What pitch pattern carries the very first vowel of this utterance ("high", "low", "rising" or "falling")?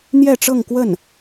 falling